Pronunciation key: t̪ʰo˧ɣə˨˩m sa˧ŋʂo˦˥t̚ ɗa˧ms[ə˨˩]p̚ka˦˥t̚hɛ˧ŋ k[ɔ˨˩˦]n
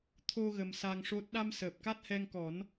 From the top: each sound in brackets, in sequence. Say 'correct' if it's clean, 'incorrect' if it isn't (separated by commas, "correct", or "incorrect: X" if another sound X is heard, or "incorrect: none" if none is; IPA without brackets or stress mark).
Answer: incorrect: əː˨˩, correct